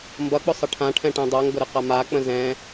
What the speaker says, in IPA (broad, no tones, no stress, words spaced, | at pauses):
mbʌk͡pʊ sˤəʈʰãʈʰɛ̃ ʈɛ̃dˤʌŋɡʊ ɾɨqamak͡pə̃ zɛ̃